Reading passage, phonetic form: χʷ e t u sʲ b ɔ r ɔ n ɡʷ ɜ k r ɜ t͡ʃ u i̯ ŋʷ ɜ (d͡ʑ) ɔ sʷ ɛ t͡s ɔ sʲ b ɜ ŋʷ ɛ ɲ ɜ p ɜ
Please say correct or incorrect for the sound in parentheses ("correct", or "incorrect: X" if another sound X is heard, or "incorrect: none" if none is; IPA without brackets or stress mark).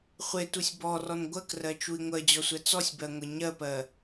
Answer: correct